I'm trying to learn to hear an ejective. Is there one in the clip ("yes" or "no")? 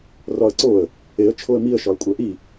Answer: yes